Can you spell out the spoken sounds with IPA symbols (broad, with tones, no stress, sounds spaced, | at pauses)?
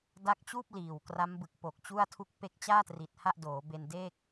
d a˦˥ k̚ t͡ɕ uː˥˩ p̚ l iː˨˩ w k r a˦˥ m b ɯ˨˩ k̚ p o˨˩ k̚ t͡ɕ u˥˩ a̯ tʰ u˦˥ k̚ p e˦˥ k̚ t͡ɕ aː˥˩ t r i˨˩ t̚ h a˥˩ ʔ d oː˩˦ b e˧ n d e˥˩ k̚